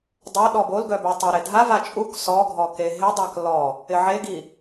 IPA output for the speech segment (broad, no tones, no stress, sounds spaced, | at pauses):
dˤ ɐ ɗ ɔ b o l ɡ œ b ø tˤ u ɾ e dʱ a v a t͡ʃʼ u k s ɔ ɡʱ ɔ k e ɦ ɪ dˤ a k l ɔ | ɪ ʕ e ɡ i